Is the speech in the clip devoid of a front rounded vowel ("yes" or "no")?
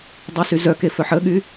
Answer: no